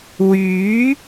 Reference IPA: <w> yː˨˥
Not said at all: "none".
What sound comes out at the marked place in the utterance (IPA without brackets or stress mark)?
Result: w